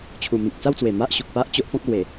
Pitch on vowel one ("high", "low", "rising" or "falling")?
low